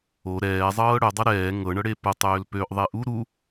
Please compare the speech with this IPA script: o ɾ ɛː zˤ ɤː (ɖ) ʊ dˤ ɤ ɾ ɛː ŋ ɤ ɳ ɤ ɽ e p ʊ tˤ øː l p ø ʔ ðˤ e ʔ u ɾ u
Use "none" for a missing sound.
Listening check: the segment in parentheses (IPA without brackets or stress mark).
ɽ